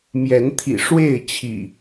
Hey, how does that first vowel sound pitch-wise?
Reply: rising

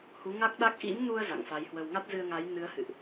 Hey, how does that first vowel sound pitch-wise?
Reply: rising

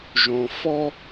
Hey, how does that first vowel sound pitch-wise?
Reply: low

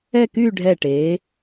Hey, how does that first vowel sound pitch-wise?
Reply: falling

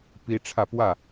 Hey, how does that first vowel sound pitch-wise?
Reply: high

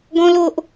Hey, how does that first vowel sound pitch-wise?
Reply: high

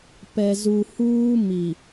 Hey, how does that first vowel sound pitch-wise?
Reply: low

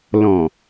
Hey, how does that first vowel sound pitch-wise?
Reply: low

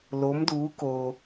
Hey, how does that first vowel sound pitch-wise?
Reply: rising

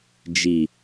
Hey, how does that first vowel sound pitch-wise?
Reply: low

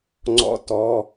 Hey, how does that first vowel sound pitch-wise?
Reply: rising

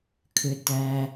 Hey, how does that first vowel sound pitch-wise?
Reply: low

